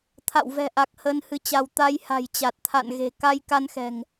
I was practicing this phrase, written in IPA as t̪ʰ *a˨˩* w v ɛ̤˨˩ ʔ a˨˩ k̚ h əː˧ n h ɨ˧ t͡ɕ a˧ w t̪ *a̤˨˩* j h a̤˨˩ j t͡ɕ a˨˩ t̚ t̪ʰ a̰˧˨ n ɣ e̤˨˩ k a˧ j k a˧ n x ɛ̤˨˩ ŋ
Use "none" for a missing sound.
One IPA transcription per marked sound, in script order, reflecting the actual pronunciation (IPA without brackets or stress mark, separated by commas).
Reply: a̰˧˨, a˧